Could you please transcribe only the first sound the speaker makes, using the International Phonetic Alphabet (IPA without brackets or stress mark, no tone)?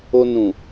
o